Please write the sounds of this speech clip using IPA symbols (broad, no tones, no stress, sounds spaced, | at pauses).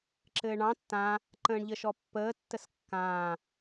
ǁ ɘː ɳ ɑ̃ tː ã | ǃ ə̃ː ɳ ʎ ə ʃ ɔ pː əː tː ə s kː ãː